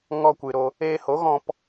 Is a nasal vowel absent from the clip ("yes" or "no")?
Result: no